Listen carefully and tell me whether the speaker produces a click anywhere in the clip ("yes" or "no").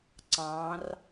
yes